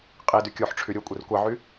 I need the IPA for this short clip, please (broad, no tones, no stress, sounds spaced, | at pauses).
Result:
qʼ i d y kʲ o ħ ʈ͡ʂʰ y ɾʲ o kʷʼ i r kʷ ɑ ʕ y